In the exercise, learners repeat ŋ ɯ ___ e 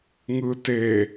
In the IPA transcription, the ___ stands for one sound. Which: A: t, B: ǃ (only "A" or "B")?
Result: A